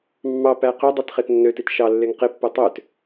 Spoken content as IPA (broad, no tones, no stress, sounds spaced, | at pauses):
mː ɑ p æ q ø dˤ i t χ e t nː ø t i t ʃ ɑ lː e ŋ q e pː o tˤ ø t